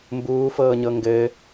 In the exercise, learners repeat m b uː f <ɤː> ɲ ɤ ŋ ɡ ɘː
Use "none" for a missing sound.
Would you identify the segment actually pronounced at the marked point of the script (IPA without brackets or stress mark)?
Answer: ɤː